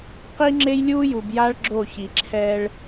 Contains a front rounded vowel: no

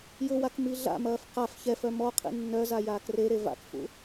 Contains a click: no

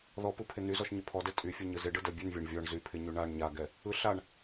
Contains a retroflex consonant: yes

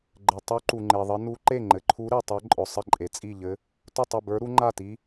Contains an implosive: no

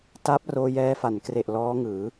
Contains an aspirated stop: no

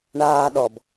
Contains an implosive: yes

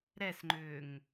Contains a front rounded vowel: yes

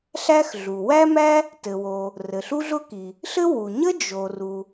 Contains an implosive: no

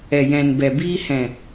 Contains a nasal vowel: yes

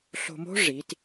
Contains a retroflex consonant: yes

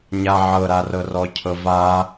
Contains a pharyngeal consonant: yes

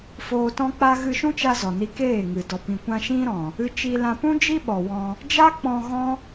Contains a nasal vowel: yes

